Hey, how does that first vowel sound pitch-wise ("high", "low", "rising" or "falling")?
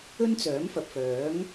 high